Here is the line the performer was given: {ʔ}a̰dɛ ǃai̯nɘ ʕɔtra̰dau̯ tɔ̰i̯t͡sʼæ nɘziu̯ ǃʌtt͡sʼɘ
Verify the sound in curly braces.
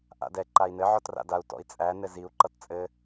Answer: correct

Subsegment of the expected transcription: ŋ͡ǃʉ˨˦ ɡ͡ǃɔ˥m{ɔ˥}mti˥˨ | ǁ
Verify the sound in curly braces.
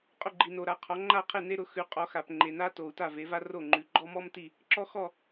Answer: correct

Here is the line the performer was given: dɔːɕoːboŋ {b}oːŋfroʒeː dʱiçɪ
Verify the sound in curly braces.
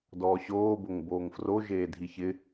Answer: correct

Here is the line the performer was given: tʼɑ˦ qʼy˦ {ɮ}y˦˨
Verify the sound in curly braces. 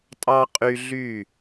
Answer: correct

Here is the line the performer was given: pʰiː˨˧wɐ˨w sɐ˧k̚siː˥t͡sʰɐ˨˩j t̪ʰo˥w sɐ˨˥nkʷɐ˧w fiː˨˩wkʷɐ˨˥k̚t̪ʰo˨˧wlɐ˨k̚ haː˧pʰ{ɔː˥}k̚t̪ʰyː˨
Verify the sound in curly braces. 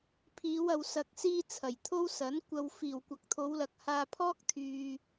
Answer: correct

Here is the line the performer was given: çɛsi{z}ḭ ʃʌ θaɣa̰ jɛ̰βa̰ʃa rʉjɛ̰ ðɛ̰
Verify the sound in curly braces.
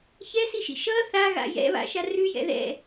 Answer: incorrect: ʃ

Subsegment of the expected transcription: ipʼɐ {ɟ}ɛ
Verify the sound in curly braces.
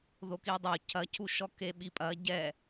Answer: correct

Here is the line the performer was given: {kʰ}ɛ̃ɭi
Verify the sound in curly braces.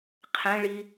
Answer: incorrect: qʰ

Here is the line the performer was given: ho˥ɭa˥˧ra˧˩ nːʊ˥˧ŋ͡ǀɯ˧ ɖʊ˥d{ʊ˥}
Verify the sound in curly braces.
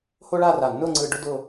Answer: incorrect: ʊ˥˧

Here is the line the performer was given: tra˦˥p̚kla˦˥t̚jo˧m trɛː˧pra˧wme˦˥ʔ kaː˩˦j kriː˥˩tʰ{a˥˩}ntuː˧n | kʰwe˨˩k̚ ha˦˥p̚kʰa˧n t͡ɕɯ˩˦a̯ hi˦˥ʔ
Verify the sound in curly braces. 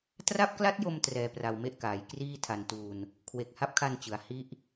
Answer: incorrect: a˧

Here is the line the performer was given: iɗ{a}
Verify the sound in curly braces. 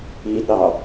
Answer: incorrect: ɑ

